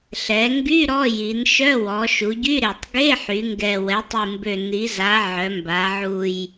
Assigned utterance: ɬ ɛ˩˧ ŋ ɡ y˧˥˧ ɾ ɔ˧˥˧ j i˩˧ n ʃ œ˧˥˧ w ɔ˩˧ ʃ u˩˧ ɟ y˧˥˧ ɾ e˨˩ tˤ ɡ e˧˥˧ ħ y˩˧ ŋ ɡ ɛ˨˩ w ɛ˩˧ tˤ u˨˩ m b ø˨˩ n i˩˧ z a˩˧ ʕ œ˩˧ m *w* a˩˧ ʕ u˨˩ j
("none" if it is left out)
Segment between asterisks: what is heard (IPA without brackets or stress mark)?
b